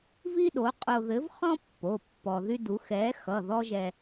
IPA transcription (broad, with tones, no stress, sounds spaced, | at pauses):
v i˥ ɗ o˨˥ qʼ o˧ ð ɘ˨˥ v χ ɔ̃˥ pː o˩˧˩ pː ɔ˧ ð y˥ d u˨˥ x ɛ˨˥ x ʌ˩˧˩ ð ɔ˥ ʒ ɛ˧